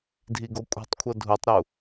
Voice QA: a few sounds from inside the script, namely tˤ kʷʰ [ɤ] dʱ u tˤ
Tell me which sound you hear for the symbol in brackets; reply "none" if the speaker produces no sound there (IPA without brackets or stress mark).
ɤ